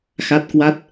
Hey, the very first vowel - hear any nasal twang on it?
no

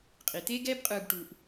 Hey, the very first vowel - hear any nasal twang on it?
no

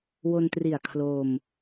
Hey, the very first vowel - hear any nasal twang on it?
no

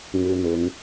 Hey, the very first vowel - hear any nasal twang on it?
no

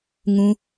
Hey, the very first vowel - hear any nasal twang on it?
yes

